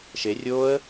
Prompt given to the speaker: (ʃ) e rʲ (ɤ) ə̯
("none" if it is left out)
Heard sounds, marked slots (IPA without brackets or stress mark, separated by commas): ʃ, o